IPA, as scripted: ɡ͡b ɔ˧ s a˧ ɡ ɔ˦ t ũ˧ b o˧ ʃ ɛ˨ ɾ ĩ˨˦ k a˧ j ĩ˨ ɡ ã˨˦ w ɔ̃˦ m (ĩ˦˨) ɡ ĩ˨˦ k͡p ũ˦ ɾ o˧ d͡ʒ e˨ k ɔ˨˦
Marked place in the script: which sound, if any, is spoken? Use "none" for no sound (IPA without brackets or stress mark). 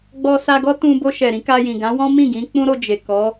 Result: ĩ˦˨